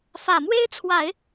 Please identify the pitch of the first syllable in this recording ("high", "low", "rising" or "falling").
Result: low